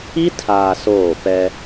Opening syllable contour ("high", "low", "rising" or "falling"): high